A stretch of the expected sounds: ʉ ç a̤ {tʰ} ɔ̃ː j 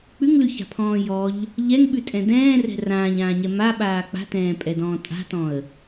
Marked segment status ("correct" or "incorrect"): incorrect